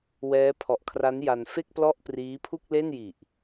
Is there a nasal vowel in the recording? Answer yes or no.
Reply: no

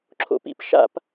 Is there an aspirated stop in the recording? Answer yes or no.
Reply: yes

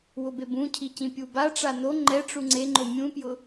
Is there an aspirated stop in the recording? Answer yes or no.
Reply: yes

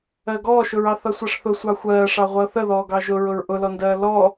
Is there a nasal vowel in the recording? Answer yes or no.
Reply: no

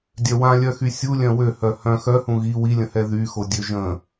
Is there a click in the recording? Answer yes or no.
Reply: no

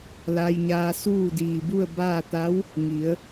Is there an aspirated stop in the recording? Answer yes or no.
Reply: no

